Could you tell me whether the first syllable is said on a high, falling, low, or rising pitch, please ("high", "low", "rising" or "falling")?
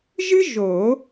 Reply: high